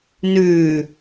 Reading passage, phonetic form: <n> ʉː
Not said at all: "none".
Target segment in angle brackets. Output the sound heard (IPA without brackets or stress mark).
n